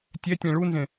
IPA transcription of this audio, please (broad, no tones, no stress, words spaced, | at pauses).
tʲɛtʲɛ̃ ɭunzẽ